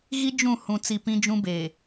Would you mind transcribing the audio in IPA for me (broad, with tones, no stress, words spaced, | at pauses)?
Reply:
ɣi˦ d͡ʒũ˦˨ hũ˨ t͡si˨ pĩ˦d͡ʒũ˦beː˨